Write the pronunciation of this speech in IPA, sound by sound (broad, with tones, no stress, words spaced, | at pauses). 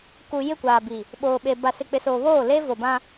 ku˨jɪ˦˨kʷaː˨bi˨ | ɓoː˨ɓe˨ ba˨sɪ˨k͡pɪ˨soː˨ βoː˦˨leː˦vo˨bã˦